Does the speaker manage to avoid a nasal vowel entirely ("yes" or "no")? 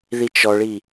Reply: yes